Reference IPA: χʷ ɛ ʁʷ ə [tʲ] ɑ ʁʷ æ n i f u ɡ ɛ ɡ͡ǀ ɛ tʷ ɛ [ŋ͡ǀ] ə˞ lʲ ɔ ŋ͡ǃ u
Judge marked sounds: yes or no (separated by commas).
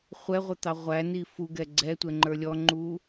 no, no